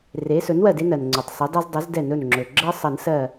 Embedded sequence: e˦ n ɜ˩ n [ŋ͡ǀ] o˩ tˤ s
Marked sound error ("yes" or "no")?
no